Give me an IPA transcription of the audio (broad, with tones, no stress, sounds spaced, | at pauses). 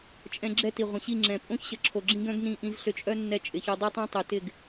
t͡ʃʼ ɛ̃˧ ɡ͡ǁ ɛ˦ t i˨ ʁʷ ə̃˨ ɕ i˦˨ ŋ͡ǁ ɛ̃˨ pʼ õ˦ ç ɕ ə˨˦ ǁʰ o˨ ɡ͡ǁ ĩ˦ ɡ œ̃˦ ɡ n ĩ˦˨ ʔ ĩ˧ z ɬ ʏ˧ t͡ʃʼ œ˦ nː ɛ˧ t͡ʃʼ ɪ˨ ç œ˧ dˤ ɛ˦ tˤ œ̃˦ tˤ y˨ t ɪ˦˨ ɡ